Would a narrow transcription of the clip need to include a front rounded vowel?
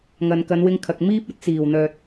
yes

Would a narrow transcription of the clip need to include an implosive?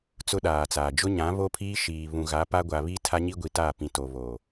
yes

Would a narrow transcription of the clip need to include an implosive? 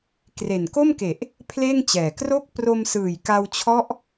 no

